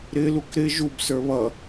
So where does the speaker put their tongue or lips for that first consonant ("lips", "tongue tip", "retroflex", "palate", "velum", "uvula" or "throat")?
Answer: tongue tip